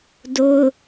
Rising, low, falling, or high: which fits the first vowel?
high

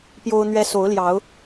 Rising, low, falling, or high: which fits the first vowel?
high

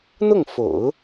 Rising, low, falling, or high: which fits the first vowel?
falling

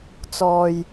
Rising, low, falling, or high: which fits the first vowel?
low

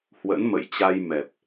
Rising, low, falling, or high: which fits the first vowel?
rising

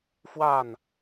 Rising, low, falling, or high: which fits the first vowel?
falling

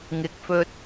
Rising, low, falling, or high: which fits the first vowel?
low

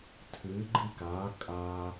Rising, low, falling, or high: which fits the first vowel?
rising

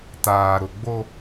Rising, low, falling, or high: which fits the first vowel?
low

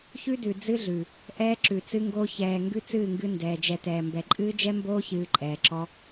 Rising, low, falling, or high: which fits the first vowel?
high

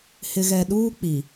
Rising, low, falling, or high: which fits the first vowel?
low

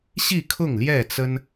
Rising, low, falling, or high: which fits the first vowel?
falling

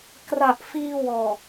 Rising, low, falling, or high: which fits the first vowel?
low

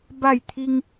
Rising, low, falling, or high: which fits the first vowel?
falling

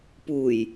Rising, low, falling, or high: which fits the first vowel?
low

